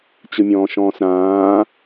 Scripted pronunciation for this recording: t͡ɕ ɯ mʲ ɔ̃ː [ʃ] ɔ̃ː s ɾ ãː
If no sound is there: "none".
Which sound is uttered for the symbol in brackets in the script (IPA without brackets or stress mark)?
ʃ